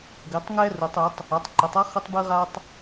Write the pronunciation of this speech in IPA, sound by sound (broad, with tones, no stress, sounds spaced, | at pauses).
ɡ ɘ˩˧ tˤ ŋ ɛ˦ r u˩˧ tˤ ɨ˩˧ tˤ | a˩˧ tˤ ǃ ɘ˩˧ tˤ a˦ χ ɘ˦ tˤ b ɨ˦ ʁ a˦ tˤ